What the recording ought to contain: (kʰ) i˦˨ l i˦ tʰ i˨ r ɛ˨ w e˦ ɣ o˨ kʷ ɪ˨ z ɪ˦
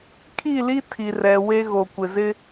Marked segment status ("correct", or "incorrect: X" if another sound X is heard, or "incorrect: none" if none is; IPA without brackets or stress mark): correct